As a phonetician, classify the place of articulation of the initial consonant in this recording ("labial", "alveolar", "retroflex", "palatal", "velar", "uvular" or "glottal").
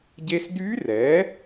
palatal